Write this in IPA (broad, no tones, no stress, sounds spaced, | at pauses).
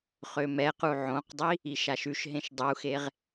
χ ø m ɛ q u ʕ õ q dˤ i | i ʃ a ʃ ʉ ʃ ɦ ẽ ʃ dˤ u x e ʁ